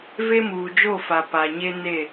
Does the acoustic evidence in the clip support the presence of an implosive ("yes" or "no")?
no